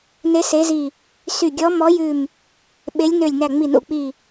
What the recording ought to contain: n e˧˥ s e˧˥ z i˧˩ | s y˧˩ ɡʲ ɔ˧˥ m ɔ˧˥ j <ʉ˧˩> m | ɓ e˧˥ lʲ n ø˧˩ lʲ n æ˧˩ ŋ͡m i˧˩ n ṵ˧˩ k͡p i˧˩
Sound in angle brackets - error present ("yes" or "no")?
no